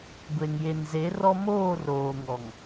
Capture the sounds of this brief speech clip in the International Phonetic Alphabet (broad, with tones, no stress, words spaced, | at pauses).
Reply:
ɡʷe˨ŋje˨nze˨˦rɔ˦ moː˦˨roː˨ŋɔ˨ŋ